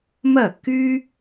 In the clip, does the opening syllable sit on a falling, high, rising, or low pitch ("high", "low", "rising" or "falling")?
falling